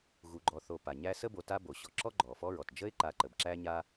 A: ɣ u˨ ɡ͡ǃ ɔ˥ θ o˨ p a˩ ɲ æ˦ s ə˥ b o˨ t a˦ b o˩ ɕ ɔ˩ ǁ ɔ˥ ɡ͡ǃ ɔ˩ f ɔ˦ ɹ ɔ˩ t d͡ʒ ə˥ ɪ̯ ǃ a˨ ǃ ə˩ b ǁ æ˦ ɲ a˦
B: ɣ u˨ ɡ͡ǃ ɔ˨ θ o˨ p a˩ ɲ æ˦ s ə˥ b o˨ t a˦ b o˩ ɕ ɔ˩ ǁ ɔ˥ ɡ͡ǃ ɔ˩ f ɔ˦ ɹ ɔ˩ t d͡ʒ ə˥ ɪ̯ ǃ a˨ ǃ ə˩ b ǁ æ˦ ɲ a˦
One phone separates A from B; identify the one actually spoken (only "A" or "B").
B